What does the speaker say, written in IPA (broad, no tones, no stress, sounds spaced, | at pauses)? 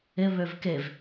ɪ β ø v k e v